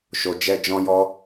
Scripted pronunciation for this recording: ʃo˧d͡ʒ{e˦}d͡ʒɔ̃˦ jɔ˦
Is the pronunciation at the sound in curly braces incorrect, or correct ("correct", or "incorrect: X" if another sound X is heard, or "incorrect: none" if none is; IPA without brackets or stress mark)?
incorrect: ɛ˦